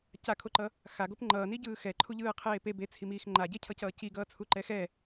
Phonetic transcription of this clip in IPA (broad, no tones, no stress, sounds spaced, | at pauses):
c a kʰ o ǃ ʌ | x a ɡ o p ŋ͡ǃ ʌː n i ɟ ɯː x ɛ ǃʰ u ʎ ɯː qʰ eː p e b e t͡sʰ i m iː x ŋ͡ǃ a ɟ e cʰ ʌ c ʌː c i ɡ ʌː t͡sʰ u ǃ ɛ x ɛ